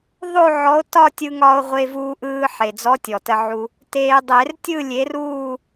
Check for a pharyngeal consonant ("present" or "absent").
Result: present